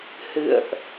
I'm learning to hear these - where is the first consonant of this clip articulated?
throat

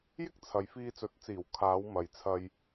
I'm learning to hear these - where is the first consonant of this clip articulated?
palate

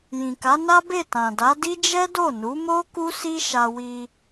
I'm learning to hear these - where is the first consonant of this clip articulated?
palate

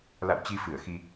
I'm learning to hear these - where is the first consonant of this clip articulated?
tongue tip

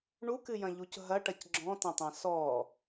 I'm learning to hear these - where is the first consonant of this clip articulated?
retroflex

